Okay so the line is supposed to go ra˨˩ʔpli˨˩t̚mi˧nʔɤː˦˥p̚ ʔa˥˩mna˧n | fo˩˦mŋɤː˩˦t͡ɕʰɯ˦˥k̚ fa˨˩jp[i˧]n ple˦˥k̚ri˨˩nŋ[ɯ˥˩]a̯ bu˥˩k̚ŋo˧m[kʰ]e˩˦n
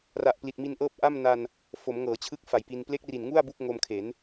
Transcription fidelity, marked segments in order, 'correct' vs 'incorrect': correct, incorrect: u˥˩, correct

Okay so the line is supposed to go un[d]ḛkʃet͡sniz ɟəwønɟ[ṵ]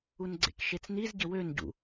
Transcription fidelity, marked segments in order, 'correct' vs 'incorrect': incorrect: ɡ͡ǀ, correct

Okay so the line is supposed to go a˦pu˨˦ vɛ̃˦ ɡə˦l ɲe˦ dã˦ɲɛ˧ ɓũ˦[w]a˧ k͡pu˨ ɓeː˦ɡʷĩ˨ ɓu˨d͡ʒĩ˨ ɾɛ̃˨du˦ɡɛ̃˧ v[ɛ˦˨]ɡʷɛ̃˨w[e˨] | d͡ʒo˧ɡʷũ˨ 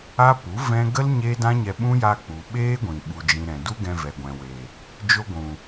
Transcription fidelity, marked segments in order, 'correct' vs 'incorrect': incorrect: j, incorrect: ɛ˨, correct

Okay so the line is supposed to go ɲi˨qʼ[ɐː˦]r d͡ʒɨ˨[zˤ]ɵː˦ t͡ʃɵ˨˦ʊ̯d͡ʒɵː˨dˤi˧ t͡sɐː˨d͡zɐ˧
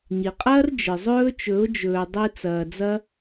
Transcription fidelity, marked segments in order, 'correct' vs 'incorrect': correct, correct

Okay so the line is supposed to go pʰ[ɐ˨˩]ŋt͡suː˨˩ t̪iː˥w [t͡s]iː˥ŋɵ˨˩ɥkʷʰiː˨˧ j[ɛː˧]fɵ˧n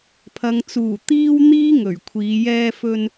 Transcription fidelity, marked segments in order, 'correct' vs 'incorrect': incorrect: ɐ˨, incorrect: n̪, correct

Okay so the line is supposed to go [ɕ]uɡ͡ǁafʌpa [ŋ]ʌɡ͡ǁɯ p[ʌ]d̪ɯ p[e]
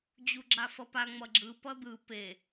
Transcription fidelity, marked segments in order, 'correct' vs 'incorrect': incorrect: d͡ʑ, incorrect: ŋ͡m, correct, correct

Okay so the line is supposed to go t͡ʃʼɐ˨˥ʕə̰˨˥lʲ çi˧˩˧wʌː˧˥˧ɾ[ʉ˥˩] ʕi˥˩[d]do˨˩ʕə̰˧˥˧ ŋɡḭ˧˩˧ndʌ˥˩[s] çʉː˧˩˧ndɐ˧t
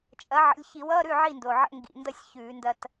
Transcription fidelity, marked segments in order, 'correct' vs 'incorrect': correct, incorrect: n, incorrect: sʲ

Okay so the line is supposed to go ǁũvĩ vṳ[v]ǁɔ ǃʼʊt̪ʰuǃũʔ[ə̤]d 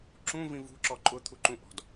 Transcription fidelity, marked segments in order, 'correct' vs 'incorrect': incorrect: none, incorrect: ɔ̤

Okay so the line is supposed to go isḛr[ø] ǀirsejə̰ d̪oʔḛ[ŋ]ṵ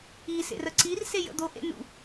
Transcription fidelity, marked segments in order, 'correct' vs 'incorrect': incorrect: ə, incorrect: n

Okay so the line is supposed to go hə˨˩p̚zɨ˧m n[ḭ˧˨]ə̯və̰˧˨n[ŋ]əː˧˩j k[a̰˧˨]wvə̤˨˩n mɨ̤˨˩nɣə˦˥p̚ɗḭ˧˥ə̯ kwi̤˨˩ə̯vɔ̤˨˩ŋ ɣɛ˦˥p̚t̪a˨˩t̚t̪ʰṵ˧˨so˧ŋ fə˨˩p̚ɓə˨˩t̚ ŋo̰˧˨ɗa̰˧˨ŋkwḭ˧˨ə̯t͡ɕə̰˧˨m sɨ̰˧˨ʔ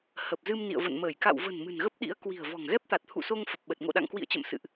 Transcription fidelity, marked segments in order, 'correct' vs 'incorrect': correct, incorrect: m, correct

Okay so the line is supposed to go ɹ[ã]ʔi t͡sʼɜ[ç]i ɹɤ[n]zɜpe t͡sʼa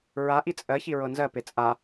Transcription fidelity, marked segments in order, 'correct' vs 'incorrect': incorrect: a, correct, correct

